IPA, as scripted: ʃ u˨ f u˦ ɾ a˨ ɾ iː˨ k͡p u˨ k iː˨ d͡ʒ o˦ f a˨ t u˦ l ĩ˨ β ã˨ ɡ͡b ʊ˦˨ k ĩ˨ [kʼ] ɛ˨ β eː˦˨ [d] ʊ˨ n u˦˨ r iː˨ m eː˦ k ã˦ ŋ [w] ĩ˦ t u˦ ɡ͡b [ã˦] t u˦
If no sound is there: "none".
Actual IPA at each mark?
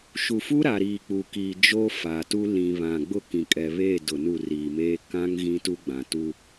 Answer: kʼ, d, ɣ, ã˨

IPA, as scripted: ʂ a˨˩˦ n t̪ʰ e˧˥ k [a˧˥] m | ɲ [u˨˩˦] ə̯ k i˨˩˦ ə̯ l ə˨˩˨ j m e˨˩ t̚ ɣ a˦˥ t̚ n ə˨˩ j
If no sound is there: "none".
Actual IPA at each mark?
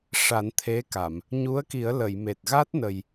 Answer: a˨˩˨, u˧˥

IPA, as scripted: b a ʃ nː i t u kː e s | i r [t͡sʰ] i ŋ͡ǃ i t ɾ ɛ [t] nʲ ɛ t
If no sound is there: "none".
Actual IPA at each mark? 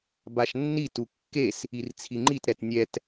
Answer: t͡sʰ, t

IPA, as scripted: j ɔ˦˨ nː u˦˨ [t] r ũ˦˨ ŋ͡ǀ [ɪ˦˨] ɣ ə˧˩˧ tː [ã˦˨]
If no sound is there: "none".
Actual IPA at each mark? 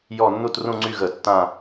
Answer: t, y˦˨, ã˦˨

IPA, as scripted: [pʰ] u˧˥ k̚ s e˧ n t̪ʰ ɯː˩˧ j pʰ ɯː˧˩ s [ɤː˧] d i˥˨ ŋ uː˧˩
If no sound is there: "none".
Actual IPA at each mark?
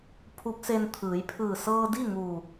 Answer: pʰ, ɤː˧

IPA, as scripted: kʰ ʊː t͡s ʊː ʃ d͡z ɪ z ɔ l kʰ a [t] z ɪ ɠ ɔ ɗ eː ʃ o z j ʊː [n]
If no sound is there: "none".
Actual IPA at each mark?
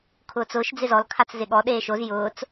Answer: t͡s, t͡s

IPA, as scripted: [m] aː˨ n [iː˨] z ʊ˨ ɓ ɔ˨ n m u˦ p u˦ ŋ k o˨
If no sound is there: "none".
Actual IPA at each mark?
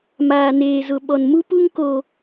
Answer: m, eː˨

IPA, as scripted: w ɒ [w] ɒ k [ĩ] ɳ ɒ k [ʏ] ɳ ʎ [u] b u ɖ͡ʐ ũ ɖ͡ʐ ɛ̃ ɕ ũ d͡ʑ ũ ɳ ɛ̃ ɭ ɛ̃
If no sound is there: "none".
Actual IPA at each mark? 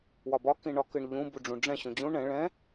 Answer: b, ĩ, ɨ, ũ

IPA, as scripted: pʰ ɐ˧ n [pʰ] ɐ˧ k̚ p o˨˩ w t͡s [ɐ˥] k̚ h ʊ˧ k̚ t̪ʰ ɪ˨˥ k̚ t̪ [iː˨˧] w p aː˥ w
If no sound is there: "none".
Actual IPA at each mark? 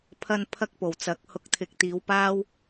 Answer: pʰ, ɐ˨˥, iː˨˧

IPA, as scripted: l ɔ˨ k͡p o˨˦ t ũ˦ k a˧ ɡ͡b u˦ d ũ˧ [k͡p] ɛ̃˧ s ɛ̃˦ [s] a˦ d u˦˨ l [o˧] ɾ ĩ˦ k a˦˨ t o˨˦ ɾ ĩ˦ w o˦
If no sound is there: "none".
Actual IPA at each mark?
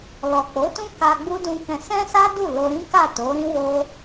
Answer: k, s, o˧

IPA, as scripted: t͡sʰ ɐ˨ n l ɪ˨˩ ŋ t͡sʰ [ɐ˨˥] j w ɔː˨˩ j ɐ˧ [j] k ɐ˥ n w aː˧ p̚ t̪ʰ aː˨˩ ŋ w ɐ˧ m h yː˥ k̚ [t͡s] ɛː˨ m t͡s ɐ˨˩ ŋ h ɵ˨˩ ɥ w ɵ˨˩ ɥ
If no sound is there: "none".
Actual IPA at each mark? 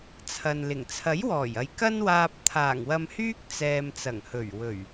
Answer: ɐ˨˥, j, t͡s

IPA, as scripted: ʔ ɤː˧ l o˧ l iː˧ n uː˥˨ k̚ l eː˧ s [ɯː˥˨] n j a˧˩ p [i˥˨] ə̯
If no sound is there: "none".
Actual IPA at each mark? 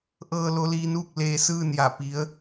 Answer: ɯː˥˨, i˧˥

